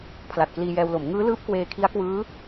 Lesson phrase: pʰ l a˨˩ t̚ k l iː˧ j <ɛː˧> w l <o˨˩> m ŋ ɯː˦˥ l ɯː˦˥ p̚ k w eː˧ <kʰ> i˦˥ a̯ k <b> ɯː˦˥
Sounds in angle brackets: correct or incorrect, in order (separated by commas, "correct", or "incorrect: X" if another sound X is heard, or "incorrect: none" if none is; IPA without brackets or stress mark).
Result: correct, incorrect: o˩˦, correct, incorrect: w